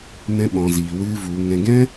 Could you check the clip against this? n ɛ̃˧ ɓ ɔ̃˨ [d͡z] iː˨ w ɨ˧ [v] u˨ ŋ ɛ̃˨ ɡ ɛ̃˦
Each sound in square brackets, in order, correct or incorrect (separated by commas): incorrect, correct